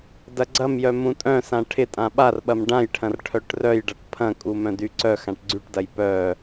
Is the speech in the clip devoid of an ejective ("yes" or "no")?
no